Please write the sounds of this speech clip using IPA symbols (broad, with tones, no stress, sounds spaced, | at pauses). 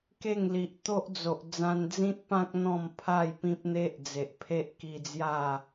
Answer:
k e˥˧ ŋ l i˨ ʔ t̪ o˦ ʔ d͡z o˨ ʔ d͡z ã˧ n d͡z ĩ˦ t̚ p ã˦ k̚ n̪ ɔ̃˥˧ m pʰ a˥˧ j p ĩ˦ p̚ n̪ e˦ ʔ d͡z e˨ ʔ pʰ e˦ ʔ k i˧ d͡z j a˥˧